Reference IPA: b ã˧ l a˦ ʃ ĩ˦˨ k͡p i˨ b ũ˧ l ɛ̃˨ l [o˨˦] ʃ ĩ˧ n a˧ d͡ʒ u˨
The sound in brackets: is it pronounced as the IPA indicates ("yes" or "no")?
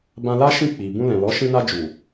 no